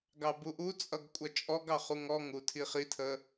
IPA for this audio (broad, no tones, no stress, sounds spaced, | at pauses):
ɡ ɑ b u ʔ u t͡sʼ ʌ ɡ kʷʼ ʌ t͡ʃʼ ɔ ɡ ɑ χ u ŋ ɔ ŋ u tʰ i χ i tʰ ə